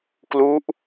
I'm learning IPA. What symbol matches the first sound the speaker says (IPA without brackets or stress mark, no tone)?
k